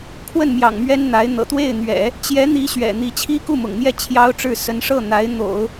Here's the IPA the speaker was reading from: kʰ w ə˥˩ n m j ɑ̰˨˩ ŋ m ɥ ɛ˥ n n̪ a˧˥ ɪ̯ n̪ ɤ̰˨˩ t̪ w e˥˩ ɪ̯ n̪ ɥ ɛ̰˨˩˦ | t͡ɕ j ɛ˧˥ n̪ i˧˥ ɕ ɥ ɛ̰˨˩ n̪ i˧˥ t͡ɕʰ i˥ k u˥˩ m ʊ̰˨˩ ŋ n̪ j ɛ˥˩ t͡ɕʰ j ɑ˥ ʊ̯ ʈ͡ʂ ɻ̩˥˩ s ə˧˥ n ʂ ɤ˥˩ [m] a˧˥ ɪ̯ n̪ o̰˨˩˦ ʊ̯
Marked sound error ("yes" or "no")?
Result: yes